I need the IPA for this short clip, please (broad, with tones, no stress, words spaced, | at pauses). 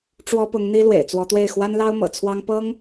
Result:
ʈ͡ʂwɔ˥pʊ˧˥ŋn̪i˥ lwḛ˨˩ɪ̯t͡swɔ˧˥t̪we˥˩ɪ̯ xwa˥nlɑ˥ʊ̯mɤ̰˨˩t͡sʰwɑ˥ŋ pɤ˥ŋ